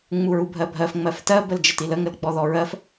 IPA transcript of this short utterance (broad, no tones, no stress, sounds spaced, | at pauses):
ŋ͡m u ɹ u bʱ ɜ bʱ ɜ f ŋ͡m ɜ f t ɜ b ə l d͡ʒ ə t i l ə ŋ ə l ɡ͡b ɔ ð ɔ ɹ ɜ f